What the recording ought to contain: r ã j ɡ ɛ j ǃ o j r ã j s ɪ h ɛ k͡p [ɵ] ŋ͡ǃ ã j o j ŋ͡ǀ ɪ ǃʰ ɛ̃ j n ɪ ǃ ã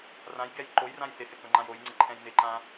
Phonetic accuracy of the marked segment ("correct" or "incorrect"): correct